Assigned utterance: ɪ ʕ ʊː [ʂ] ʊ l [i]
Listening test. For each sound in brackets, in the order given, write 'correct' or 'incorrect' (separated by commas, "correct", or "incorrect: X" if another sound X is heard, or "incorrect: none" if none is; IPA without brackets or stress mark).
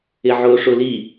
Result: correct, correct